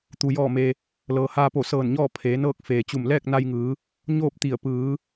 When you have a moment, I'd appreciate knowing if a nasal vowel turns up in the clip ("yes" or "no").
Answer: no